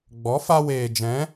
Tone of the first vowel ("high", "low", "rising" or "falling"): rising